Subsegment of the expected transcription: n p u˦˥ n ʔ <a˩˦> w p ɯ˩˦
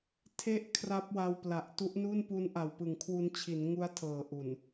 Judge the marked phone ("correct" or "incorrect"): incorrect